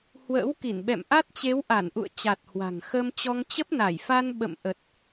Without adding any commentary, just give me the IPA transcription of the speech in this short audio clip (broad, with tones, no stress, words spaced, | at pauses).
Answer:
hwə̰ː˧˥wki˧˩nɓɛ̰˧˨mʔa˦˥t̚ t͡ɕe˨˦wʔa˧˩nʔṵ˧˨ə̯ t͡ɕa˨˩t̚ hwa̤˨˩ŋxə˧mt͡ɕɔ˧ŋ t͡ɕə˦˥p̚na˧˩jfa˧n ɓə̰˧˨mʔə˨˩t̚